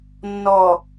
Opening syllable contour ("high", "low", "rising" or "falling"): low